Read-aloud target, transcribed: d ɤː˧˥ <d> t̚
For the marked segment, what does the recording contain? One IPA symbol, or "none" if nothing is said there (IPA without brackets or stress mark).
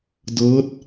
none